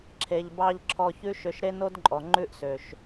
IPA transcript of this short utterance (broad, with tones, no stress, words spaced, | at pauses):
ǁʰe˨ʎbɑ˧ʎ ǁʰɔ˧çʉ˦ ʃø˧ʃɾe˦no˦dǃʼɔ˨ ŋ͡ǃʉ˦ʔsø˨ʃ